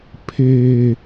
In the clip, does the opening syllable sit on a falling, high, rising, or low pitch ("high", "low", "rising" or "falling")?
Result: low